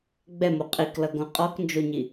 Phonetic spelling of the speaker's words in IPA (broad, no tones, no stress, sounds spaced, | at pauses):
ɡ͡b ɛ m o qʼ i k l ʌ ɡ õ qʼ ɔ k n d͡ʒ o ɲ i